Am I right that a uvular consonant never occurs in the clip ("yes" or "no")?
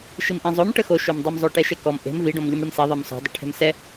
yes